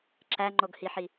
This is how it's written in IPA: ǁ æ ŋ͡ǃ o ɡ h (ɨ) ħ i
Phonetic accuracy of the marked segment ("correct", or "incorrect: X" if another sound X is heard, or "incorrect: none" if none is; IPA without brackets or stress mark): incorrect: i